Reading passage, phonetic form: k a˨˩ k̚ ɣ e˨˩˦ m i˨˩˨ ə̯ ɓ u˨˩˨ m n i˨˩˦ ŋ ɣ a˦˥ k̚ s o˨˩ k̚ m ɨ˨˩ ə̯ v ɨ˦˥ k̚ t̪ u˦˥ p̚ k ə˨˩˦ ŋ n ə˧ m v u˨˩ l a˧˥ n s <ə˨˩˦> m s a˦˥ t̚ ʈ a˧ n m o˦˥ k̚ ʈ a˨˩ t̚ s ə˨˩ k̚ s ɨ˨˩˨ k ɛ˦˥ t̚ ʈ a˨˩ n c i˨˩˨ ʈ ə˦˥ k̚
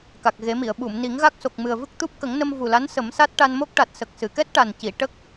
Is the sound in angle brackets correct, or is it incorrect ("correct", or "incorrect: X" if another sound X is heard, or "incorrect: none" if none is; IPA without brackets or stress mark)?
correct